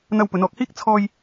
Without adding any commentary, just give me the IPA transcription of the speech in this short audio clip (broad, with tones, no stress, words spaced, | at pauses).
n̪ɐ˧wpɵ˨˧nɔː˨k̚hiː˥k̚ t͡sʰɔː˧j